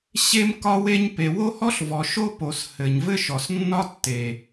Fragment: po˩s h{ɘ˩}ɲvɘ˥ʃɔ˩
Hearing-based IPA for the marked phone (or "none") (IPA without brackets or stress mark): ɘ˩